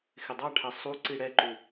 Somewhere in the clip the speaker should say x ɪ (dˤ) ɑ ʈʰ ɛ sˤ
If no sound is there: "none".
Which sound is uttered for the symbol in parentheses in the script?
dˤ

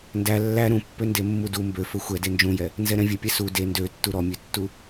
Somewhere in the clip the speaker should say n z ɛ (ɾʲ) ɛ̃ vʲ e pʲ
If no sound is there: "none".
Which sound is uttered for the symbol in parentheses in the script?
ɾ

